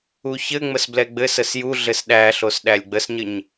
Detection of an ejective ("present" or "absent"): absent